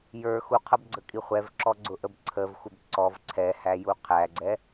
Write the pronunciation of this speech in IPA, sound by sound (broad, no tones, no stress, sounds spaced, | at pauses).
j ə˞ x u qʰ ʌ b ɡ͡ǀ ə kʼ i χʷ ɛ v ǁ ɔ ɡ͡ǀ ʊ ʔ ə b ǀʰ ə v xʷ ɪ b ǀ ɔ v ǀʰ ɛ h æ j u qʰ æ ɡ͡ǀ ɛ